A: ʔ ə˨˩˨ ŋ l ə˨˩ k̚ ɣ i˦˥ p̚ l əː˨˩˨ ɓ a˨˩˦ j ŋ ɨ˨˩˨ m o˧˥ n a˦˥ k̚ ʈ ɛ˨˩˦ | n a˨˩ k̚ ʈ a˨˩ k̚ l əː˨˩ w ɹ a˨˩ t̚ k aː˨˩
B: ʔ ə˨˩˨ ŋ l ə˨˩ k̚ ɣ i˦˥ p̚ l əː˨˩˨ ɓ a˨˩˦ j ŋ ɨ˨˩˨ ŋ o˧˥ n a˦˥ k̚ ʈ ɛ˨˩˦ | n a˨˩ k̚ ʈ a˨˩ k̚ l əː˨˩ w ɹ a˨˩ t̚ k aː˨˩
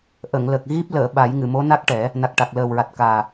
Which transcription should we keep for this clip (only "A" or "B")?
A